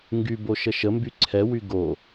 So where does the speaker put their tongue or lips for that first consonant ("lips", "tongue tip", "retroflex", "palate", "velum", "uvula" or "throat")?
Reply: velum